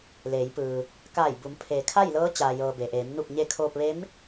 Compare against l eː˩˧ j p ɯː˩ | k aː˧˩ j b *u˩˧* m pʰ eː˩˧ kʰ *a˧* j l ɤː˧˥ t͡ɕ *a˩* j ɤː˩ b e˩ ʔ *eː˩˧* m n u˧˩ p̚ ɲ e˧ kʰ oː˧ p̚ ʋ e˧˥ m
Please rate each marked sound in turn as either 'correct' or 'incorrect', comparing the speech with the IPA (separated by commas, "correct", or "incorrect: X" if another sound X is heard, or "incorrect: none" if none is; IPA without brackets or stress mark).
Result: correct, incorrect: a˥˨, incorrect: aː˩, correct